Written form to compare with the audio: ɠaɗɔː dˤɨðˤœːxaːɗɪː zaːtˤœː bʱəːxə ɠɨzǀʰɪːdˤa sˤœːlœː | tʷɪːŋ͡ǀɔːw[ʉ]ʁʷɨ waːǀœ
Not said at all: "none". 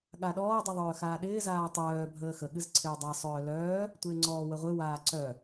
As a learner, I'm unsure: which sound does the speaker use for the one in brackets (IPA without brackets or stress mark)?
ə